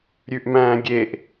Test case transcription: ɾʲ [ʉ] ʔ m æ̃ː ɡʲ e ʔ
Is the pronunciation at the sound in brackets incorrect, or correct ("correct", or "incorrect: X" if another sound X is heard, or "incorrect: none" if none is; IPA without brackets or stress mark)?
correct